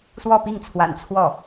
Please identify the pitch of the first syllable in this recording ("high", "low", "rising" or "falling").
falling